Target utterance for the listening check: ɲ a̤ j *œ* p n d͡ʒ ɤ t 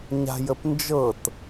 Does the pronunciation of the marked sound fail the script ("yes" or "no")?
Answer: yes